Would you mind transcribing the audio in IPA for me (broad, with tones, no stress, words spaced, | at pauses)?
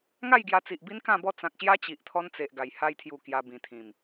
ŋa˥˧jɡja˧t͡si˨ʔ bi˦nkã˥˧bɔ˥˧ t͡sã˨k̚ɕja˦ t͡ɕi˨ʔt̪ʰɔ˦nt͡se˨ʔɡa˨˩j ha˧jt̪ʰju˨˩ kja˧bĩ˨˩t̪ʰĩ˨˩m